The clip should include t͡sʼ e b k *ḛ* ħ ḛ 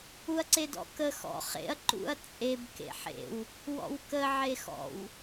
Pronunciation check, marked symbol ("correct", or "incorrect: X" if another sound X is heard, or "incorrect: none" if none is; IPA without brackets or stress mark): correct